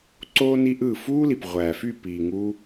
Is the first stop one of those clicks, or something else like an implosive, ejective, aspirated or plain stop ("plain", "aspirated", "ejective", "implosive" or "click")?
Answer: click